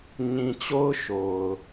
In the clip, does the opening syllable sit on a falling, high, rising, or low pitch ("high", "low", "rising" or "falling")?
low